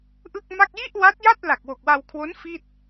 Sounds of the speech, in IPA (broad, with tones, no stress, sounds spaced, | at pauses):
ʔ ɯ˥˩ k̚ m a˥˩ k̚ j i˥˩ ʔ w a˦˥ t̚ j a˥˩ t̚ l a˨˩ k̚ w o˨˩ k̚ w a˧ w kʰ w o˦˥ n f i˥˩ t̚